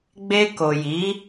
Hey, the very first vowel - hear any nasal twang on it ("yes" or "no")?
no